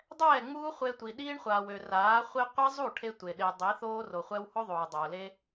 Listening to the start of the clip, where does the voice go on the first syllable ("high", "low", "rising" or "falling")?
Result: falling